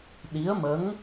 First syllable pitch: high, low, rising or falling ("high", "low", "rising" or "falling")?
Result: rising